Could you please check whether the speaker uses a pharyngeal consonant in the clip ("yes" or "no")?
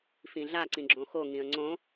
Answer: no